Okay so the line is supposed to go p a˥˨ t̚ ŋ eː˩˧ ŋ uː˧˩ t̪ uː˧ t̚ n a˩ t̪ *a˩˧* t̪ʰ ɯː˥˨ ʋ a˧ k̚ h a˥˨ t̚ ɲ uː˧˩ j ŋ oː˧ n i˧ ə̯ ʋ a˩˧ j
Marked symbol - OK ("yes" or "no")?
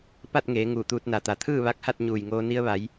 yes